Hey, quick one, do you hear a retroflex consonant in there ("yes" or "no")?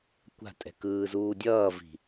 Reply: no